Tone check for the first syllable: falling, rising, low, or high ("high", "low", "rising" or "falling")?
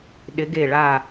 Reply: rising